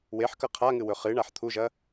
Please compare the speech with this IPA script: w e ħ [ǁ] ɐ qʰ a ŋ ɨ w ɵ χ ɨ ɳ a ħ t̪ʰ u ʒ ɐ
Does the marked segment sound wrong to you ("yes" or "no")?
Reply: yes